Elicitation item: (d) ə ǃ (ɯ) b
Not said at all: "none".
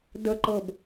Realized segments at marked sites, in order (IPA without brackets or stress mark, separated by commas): d, ɤ